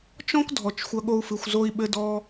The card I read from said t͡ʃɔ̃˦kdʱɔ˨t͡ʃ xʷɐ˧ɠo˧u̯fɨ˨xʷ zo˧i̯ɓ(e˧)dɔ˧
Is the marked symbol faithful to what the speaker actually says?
no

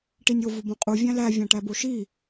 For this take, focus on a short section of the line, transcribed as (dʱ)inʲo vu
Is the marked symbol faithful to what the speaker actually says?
no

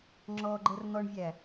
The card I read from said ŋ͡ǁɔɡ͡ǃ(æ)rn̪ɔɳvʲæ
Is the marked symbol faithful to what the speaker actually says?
no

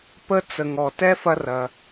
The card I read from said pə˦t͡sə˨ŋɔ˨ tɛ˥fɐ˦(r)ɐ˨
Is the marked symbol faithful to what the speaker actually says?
yes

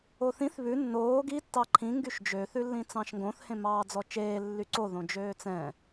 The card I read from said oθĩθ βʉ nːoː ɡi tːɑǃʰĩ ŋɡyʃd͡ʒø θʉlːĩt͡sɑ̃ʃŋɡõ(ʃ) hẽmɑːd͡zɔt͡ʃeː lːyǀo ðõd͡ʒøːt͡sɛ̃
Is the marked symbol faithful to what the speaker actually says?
no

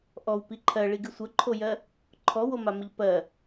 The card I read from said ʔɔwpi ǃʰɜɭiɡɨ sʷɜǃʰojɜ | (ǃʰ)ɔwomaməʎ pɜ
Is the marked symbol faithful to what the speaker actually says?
yes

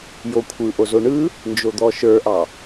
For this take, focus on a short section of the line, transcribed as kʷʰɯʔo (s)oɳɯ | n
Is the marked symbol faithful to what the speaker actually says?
no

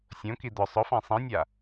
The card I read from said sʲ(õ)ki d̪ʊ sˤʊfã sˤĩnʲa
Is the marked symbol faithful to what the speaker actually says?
yes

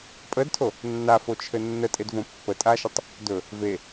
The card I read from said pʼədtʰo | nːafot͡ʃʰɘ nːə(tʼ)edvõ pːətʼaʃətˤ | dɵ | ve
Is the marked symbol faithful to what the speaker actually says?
yes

